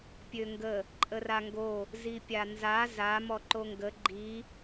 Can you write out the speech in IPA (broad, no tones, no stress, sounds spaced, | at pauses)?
pʲ ø ŋ ɡ ə | ǃʼ ə r a ŋ ɡ o | z i pʲ a n z a z a m ɔ ǃ o ŋ ɡ ə ɡ͡ǃ i